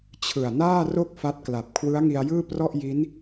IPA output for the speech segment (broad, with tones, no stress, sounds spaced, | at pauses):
t͡ɕʰ ɯ˨˩ a̯ n aː˥˩ r o˥˩ k̚ f a˦˥ t̚ k l a˨˩ p̚ kʰ w ɯ˦˥ a̯ ŋ i˧ a̯ j ɯː˥˩ p r ɔ˥˩ ʔ j i˦˥ n